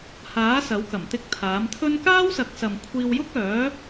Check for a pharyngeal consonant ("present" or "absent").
absent